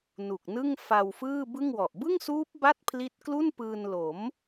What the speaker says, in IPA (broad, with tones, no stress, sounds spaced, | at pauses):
n u˨˩ k̚ n ɯ˥˩ ŋ f a˧ w f ɯː˥˩ b ɯ˥˩ ŋ w ɔ˨˩ ʔ b ɯ˥˩ ŋ s uː˦˥ p̚ b a˥˩ t̚ pʰ l i˦˥ t̚ k l u˥˩ n p ɯː˧ n l o˩˦ m